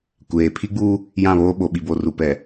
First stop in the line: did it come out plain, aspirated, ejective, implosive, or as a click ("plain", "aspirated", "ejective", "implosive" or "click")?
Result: plain